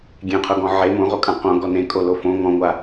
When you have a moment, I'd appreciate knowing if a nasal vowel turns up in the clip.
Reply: yes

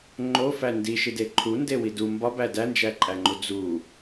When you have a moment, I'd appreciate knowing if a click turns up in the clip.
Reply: yes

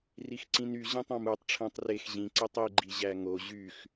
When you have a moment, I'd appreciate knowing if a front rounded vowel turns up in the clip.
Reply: yes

